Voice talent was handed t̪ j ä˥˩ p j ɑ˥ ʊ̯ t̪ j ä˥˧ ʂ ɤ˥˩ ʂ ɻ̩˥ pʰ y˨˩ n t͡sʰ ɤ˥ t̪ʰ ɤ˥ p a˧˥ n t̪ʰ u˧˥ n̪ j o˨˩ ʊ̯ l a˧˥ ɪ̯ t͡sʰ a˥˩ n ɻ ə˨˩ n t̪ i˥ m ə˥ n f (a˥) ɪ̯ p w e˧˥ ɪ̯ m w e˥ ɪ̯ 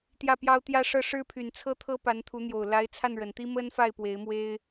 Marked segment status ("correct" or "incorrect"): incorrect